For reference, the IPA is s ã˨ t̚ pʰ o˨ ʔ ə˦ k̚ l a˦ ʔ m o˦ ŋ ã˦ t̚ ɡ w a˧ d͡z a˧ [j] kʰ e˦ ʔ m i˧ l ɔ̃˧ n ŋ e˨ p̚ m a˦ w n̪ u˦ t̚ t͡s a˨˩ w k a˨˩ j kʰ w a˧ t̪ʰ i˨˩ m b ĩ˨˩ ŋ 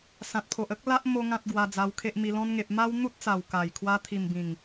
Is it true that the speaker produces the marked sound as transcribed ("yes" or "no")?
no